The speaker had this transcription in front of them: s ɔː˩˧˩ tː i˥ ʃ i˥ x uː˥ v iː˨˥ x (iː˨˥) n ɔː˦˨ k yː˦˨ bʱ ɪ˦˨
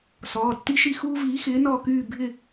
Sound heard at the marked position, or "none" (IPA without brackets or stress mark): ɪː˨˥